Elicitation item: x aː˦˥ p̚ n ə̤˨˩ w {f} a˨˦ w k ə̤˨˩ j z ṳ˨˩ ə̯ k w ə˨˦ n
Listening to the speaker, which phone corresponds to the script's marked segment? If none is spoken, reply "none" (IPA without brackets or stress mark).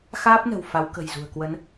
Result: f